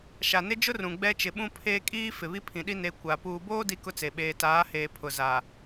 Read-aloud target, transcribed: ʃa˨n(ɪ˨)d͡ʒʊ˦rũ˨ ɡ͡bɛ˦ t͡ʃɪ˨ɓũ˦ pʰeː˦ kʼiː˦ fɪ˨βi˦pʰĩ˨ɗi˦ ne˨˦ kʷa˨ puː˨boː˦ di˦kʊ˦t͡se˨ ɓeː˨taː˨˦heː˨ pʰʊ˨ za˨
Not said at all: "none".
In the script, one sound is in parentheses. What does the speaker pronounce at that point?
ɪ˦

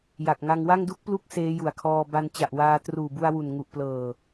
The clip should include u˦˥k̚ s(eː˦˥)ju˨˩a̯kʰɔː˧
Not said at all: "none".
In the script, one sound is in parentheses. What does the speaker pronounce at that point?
eː˦˥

